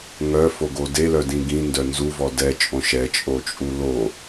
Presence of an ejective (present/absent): present